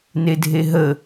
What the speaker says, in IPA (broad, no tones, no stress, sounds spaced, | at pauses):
n e dʱ e ɦ ə